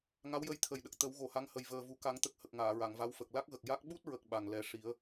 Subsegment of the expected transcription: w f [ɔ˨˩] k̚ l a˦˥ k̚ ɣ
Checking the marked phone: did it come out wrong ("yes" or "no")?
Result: yes